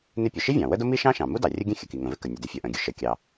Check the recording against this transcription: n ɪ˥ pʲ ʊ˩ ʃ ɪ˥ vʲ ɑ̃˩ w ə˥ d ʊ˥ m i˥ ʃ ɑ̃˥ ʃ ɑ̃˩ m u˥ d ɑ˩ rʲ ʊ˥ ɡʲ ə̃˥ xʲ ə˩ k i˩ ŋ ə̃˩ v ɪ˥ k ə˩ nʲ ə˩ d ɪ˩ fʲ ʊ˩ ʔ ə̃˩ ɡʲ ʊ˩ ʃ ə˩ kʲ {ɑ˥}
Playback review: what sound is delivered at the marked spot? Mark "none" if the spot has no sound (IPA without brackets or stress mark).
ɑ˩